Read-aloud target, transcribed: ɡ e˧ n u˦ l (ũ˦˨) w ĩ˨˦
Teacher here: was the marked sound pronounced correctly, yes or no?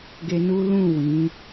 yes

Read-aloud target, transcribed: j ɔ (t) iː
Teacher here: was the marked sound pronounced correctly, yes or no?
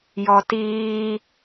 yes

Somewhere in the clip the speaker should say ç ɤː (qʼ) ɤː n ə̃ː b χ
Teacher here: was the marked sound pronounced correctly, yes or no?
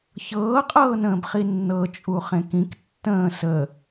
yes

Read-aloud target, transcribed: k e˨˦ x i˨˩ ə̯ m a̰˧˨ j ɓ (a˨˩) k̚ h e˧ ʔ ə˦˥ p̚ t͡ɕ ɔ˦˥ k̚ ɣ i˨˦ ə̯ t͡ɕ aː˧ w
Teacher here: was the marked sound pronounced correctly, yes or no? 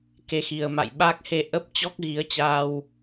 no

